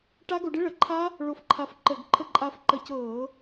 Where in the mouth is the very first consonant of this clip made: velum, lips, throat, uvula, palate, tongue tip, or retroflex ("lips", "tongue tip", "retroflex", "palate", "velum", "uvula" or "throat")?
retroflex